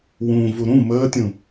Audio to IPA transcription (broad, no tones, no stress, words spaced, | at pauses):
wũ vuɾũ məːtʲũ